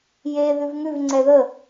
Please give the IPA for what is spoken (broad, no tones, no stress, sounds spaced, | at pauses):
j e ð ʉ v ŋ ʉ v ŋ͡ǀ ɛ ð ə